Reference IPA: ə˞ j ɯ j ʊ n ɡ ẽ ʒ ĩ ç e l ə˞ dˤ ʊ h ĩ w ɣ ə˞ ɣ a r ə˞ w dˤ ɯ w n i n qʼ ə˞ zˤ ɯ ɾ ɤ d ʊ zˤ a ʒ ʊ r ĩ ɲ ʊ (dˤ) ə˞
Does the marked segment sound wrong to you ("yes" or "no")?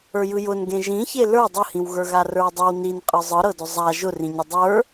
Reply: no